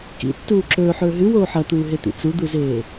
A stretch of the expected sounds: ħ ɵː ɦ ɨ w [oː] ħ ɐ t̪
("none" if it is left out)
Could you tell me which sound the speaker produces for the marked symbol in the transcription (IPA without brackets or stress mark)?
oː